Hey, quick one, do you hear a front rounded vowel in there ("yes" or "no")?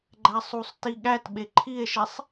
no